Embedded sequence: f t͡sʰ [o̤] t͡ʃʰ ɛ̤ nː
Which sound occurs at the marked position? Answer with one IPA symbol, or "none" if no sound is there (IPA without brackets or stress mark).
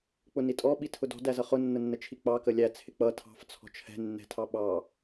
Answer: ɔ̤